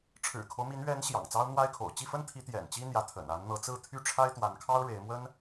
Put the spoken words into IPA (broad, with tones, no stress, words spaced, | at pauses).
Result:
ʈ͡ʂʰɻ̩˨˩kʰo˦ʊ̯mi˧˥n ɥɛ˧˥n ɕjɑ̰˨˩ŋt͡sɑ˥ʊ̯n̪wa˥ɪ̯kʰo̰˨˩ʊ̯ t͡ɕi˥˩fə˥nt̪ʰi˧˥ t̪jɛ̰˨˩nt͡ɕi˥ n̪jä˧˥t̪ʰə̰˨˩n a˧˥nn̪ɤ˧˥t͡sɹ̩˥˧ t̪ʰy˥˩ʈ͡ʂʰa˥ɪ̯t̪wa˧˥nkʰɑ˥ʊ̯ ɻe˧˥ɪ̯mwə˥n